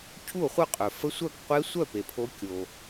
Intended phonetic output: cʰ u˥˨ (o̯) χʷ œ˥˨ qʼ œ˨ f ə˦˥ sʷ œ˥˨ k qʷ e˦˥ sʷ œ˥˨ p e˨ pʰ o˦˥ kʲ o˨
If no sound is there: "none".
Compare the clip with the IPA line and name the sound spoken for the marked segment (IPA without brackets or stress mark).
o̯